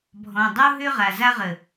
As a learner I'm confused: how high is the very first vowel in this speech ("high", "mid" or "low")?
mid